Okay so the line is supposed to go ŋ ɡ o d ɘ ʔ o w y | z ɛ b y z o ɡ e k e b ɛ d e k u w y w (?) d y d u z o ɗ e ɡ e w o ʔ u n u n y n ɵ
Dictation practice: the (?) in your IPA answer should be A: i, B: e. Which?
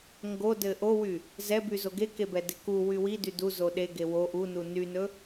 A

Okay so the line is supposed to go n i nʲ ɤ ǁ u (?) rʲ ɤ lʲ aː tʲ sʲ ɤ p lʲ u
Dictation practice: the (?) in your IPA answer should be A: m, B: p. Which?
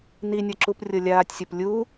B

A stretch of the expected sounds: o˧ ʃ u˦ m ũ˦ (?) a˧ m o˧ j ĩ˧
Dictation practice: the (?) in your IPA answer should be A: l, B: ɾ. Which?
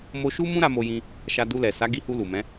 B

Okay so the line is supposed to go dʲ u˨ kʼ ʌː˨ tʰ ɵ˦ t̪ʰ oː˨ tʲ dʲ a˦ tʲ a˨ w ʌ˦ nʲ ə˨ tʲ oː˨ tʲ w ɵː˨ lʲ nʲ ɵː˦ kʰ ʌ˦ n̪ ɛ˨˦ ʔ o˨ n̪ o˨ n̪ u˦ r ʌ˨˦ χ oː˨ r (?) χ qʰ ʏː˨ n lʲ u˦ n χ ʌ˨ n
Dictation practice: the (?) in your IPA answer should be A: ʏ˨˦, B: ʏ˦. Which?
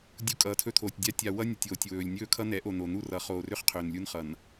B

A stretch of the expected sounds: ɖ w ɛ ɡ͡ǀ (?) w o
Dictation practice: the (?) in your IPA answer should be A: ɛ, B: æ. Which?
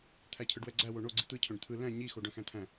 B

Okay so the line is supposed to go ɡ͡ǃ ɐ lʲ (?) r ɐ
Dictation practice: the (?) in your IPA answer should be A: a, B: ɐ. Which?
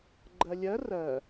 B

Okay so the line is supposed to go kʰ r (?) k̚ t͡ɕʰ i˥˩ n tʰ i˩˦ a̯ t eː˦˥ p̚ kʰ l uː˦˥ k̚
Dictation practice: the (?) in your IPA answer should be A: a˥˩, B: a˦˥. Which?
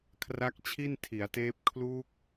B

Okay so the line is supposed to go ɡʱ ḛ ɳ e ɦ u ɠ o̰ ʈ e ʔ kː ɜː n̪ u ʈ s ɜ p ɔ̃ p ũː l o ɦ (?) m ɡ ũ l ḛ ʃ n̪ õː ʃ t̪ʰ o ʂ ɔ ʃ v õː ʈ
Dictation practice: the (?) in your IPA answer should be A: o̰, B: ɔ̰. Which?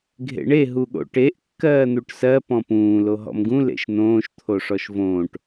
B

